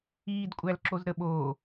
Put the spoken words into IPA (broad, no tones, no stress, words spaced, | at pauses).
iːdkʷʼælǁoz ɾəɓo